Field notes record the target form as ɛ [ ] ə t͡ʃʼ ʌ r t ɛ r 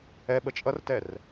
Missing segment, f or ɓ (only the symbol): ɓ